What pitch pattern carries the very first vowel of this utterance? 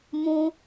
high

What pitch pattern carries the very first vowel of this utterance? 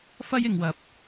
high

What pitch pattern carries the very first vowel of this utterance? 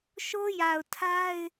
high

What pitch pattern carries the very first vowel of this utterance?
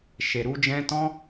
low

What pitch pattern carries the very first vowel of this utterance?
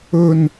falling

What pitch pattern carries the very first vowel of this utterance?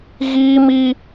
high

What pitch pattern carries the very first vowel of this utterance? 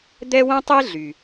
high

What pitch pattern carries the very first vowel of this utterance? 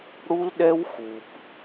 high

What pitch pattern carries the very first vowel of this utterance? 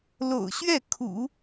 low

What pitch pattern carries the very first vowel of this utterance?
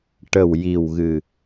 low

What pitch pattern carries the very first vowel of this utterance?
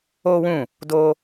high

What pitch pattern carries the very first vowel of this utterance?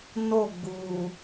falling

